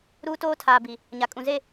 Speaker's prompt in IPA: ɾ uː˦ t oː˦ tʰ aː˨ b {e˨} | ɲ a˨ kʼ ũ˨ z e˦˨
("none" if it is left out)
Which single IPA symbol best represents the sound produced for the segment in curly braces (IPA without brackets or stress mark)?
i˨